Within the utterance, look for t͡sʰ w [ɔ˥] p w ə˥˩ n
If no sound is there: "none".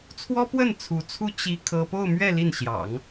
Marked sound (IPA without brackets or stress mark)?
ɔ˥